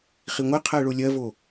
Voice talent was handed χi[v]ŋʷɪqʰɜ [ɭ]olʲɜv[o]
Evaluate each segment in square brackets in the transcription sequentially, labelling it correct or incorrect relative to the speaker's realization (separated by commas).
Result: incorrect, correct, correct